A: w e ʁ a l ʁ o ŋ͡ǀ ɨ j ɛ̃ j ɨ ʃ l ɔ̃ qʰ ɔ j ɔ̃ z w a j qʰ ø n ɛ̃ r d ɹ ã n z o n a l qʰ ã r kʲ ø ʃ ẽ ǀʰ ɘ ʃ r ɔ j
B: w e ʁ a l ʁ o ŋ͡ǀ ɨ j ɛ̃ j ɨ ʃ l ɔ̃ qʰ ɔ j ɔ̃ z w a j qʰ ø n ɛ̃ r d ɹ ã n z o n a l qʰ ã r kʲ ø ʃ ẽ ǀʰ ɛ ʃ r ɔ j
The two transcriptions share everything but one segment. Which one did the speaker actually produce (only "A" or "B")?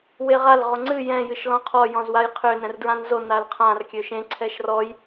B